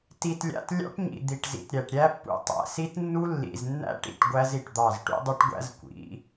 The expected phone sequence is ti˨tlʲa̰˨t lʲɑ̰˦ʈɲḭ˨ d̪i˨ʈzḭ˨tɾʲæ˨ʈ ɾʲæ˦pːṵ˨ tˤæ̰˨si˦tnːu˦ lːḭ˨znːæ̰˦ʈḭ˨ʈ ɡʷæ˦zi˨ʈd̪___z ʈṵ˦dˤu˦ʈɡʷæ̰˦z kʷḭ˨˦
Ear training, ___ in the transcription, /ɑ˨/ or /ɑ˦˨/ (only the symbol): ɑ˦˨